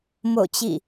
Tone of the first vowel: falling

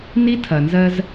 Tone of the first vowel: high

